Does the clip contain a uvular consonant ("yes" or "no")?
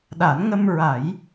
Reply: no